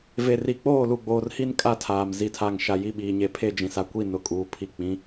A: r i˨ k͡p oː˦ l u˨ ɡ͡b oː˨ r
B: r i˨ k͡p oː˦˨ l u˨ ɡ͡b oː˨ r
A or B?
B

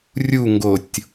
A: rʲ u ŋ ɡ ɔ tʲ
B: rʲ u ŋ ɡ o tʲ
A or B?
B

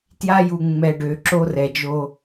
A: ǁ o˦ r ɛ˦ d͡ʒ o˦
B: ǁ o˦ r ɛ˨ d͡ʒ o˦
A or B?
B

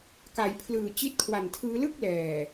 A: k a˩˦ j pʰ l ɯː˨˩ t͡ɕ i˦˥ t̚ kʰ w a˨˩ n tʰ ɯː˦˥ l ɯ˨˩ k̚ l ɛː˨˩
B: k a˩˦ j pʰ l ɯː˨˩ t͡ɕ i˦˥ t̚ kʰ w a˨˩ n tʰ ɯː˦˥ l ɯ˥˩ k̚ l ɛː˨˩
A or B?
B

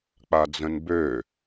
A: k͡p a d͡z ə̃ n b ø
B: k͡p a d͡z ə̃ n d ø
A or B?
A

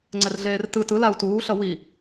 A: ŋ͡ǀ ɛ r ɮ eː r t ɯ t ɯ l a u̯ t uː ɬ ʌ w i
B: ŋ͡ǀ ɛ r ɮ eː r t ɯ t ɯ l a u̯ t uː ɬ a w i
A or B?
A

